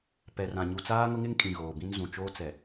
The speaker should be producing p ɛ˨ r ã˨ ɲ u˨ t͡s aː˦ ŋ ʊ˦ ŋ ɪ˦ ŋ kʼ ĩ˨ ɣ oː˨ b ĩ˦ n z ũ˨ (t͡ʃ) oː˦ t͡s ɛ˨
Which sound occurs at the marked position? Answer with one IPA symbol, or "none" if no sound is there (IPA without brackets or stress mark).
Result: t͡ʃ